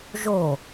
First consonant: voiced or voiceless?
voiced